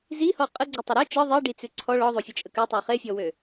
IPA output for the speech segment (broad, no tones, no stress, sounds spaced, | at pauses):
z i h ɔ qʼ ə ɡ͡ǀ e tˤ e ɾ ø t͡ʃ ɤ ðˤ i ɖ i t͡s ʉ ǀʰ ɔ ɭ ɔ ðˤ o fʲ ə t͡ʃʼ ə k ʉ tˤ ʉ χ e fʲ ɔ w ø